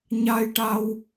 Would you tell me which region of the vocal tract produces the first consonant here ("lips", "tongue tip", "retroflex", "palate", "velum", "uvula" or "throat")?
palate